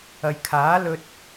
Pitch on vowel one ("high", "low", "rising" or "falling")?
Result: low